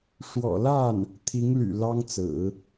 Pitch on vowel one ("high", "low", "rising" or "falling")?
low